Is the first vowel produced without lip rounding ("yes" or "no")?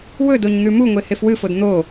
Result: no